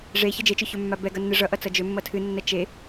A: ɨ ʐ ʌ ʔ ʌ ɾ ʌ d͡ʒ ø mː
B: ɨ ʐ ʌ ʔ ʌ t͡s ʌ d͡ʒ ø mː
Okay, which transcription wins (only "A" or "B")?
B